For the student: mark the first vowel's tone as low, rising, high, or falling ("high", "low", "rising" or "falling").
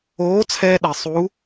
rising